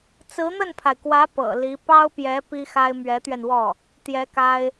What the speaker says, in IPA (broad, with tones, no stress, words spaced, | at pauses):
t͡sɹ̩˧˥n̪ə˥˩npʰa˩ɪ̯kwä˧˥ pɤ̰˨˩li˧˥ pɑ˥ʊ̯pjɛ˧˥ pi˥xa˥ɪ̯ mɥɛ˧˥t̪ɥɛ˧nwɔ˥˩ | t̪jɛ˧˥ka˥ɪ̯